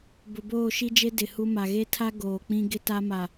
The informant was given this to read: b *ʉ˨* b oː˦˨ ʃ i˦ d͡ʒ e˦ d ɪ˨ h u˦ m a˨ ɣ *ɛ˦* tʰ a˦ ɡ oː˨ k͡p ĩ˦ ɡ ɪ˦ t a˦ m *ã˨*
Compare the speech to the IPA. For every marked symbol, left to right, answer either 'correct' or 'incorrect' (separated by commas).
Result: incorrect, incorrect, incorrect